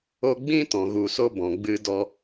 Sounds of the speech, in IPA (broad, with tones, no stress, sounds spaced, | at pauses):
o˧ ɡ͡b ĩ˦ t ɔ̃˨ ɣ u˨ s o˧ b ɔ̃˨ ɡ͡b ɨ˧ d ɔ˧